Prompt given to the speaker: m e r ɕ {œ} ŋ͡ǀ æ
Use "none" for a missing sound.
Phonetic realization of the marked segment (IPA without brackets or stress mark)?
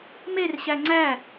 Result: æ